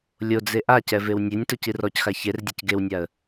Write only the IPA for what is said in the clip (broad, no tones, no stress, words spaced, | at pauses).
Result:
lʲod͡ze ʔacɛvew nʲenʲtocir ɔcxa çerdʲɛc ɡewnʲaə̯